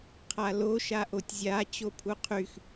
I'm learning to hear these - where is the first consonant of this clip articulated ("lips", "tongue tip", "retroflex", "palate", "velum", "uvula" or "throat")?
uvula